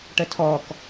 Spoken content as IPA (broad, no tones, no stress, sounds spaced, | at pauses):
ʈ ə tʰ ɔ k